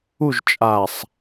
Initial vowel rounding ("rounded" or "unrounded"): rounded